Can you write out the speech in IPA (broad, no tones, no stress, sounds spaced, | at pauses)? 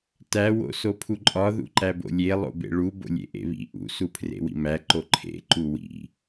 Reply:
t æ w o̰ s o pʰ u ǃʼ ɒ ð ṵ ǃ æ b o̰ lʲ e lˠ o̰ b ḛ ɭ u b o̰ lʲ ḛ ʔ ḛ β ḭ ʔ ṵ s u pʰ r ḛ w ḭ m æ ǃ o ǃʰ ḛ ǃ u w ḭ